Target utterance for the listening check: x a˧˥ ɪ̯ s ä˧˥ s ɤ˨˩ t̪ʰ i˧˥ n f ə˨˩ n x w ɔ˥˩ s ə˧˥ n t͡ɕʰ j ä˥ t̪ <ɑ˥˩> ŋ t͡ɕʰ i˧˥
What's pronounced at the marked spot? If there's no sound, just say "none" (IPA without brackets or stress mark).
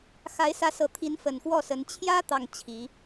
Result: ɑ˥˩